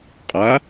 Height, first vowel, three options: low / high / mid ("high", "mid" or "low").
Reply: low